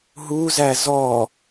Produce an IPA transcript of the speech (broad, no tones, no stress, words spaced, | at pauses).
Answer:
ɦuzæ zɔ